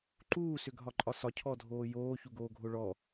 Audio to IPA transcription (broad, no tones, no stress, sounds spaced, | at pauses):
ǃ uː s ʏ ɡʱ ɒ ǃʼ ɒ s ɒ cʰ ɔ dʱ oː j oː ç u ɡ oː ɡʱ o ɭ ɔ